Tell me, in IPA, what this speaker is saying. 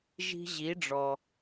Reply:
ʒi̤˧ ʑi˩˧ɖ͡ʐɔ˩

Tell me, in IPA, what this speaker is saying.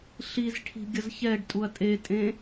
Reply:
ɬizʈʰi̤ ɡʲʌzçɛɖtʼuɐ̯ tʼetʼẽ

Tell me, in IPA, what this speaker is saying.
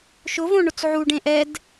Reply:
ʃʊvõ ɳʊt͡sʕu ɖẽʔɛd

